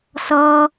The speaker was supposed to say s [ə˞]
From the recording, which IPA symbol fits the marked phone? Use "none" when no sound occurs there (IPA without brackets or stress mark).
ʌ